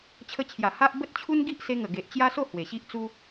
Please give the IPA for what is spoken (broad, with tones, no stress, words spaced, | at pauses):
t͡ɕʰə˧t͡ɕʰja˨˩ ha˦ʔ bə˦t̚t͡ɕʰu˦nɡi˦ʔ se˧ŋə˨˩ɡe˨ʔ t͡ɕja˦so˥˧ hwe˨˩ɕi˦ʔt͡su˦